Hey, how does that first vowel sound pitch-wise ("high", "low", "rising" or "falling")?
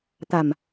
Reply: low